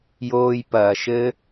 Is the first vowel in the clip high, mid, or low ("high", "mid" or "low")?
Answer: mid